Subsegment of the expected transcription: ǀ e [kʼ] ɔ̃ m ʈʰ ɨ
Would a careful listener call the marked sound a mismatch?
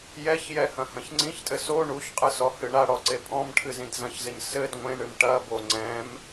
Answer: yes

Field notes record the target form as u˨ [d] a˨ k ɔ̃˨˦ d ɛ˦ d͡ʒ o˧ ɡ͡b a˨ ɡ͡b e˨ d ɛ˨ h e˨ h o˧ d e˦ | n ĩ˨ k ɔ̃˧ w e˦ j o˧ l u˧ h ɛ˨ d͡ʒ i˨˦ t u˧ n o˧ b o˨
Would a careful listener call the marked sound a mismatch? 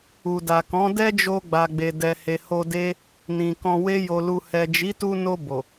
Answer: no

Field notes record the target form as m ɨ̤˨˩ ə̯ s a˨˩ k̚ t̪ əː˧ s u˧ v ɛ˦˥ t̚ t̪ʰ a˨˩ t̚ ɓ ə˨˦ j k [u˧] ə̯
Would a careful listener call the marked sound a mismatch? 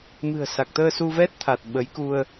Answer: no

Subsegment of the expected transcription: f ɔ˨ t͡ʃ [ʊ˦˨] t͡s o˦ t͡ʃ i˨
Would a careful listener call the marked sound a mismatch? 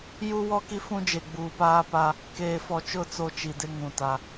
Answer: no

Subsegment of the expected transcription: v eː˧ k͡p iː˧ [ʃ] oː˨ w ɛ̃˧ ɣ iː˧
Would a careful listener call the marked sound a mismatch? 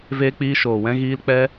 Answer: no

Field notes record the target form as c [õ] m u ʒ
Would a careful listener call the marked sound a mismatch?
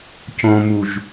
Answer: no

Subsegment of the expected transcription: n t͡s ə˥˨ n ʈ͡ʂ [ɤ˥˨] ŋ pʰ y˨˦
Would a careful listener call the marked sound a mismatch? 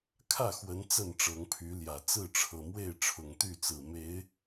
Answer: yes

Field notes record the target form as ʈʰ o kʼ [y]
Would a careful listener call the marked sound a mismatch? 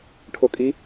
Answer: yes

